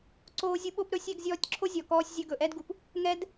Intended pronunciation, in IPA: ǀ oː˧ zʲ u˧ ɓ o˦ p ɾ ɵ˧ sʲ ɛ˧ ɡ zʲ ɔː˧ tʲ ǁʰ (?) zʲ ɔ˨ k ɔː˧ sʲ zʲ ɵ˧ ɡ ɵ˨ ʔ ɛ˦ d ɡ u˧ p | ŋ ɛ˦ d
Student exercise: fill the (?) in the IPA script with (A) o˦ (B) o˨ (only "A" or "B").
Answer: A